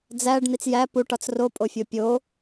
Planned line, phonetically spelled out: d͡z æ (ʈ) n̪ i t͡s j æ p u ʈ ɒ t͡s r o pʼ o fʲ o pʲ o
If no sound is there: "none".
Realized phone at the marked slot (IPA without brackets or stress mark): ɖ